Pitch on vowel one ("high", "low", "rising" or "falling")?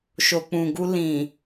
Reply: low